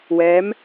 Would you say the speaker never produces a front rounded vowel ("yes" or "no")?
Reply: yes